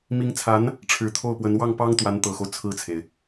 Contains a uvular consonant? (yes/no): no